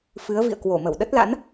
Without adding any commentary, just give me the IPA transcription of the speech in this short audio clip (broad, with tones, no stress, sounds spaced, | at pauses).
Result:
f ɨ˨˦ ə̯ v ḭ˧˨ ə̯ k w o˧˩ m ə˧˩ w ɗ ə˦˥ t̚ l a̰˧˥ n